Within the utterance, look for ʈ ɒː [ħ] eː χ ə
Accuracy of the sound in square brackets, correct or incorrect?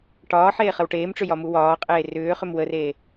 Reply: correct